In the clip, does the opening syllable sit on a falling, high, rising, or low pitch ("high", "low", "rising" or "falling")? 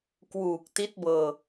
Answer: low